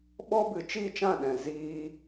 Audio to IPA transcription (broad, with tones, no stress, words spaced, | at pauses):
ɓɔ˦bɨ˨ t͡ʃi˦˨t͡ʃã˦˨ɗɛ̃˨ ziː˧